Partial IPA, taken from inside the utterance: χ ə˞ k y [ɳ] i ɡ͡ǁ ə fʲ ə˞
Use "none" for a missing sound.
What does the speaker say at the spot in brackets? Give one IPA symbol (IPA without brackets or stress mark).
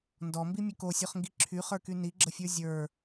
n